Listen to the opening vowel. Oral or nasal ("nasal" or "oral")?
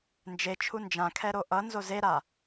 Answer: oral